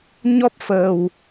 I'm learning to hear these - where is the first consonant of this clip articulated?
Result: palate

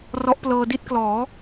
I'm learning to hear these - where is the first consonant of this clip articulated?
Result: tongue tip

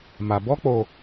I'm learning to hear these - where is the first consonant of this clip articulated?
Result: lips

